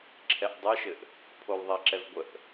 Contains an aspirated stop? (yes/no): yes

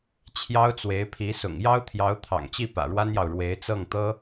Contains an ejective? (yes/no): no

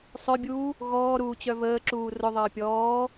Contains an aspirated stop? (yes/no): no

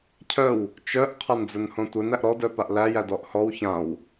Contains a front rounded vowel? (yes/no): yes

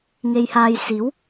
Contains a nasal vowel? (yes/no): no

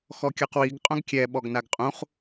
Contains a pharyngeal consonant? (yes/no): no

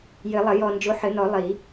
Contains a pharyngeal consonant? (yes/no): yes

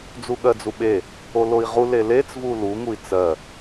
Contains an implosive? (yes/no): yes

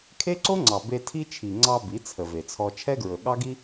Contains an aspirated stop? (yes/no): yes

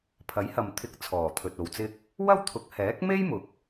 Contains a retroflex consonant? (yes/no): no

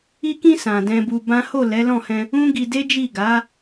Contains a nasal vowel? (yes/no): yes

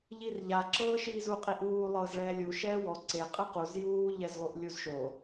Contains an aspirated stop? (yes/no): no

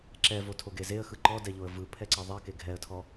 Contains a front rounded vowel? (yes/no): no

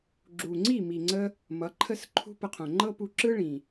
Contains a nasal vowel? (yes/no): yes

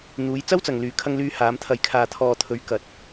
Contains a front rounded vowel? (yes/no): yes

